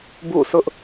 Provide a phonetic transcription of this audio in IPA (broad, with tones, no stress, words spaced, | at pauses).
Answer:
bṵ˦˨sʊ˦ʔ